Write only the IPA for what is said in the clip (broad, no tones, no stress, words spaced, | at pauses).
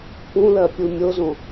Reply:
pũlɜ pʲumʲozõ